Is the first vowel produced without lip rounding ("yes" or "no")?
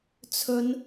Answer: no